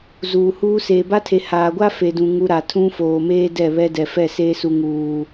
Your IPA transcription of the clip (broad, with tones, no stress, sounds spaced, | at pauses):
z uː˨ h uː˦ s eː˨ b a˦ tʰ e˨ h aː˨ ɡʷ a˦ f e˨ d ũ˨ ŋ u˦ ɾ a˨ tʰ ũ˦ f oː˨ m eː˦ d ɛ˦˨ β ɛ˦ d ɛ˨ f ɛ˦˨ s eː˦ s u˨ ŋ uː˨